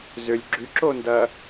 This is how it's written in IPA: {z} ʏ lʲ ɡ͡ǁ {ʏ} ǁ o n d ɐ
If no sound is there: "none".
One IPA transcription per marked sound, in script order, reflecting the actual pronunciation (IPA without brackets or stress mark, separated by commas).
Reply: z, y